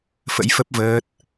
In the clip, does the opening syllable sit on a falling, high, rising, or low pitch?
rising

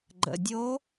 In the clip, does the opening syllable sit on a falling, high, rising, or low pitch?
low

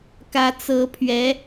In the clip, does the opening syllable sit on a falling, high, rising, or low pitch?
rising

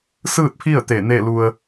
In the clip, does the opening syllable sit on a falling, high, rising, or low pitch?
falling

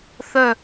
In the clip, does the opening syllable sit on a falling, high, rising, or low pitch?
falling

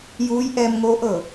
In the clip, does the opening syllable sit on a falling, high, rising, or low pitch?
rising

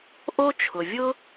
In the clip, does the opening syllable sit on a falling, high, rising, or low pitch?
high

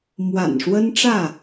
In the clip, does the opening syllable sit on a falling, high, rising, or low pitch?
low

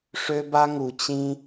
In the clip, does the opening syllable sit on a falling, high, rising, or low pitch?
high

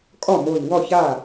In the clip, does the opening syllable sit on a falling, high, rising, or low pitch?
falling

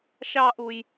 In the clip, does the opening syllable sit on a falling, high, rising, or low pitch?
high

